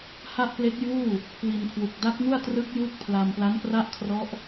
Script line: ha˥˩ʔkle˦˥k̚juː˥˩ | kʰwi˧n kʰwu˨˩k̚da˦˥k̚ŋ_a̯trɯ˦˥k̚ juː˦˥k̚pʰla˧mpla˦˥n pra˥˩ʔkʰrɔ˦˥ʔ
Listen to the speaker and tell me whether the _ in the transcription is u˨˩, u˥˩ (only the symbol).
u˥˩